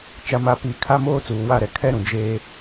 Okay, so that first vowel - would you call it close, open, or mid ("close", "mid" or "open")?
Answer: open